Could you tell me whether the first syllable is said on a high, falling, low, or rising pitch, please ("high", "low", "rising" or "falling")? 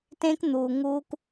high